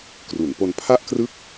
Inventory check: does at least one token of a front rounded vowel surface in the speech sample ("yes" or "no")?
no